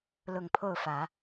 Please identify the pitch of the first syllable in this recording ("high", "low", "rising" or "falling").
low